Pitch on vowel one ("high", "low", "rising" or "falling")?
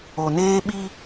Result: low